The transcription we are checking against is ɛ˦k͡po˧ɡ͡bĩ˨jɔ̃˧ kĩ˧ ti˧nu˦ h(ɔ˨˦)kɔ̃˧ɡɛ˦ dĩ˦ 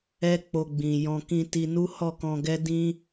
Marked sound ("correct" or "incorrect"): incorrect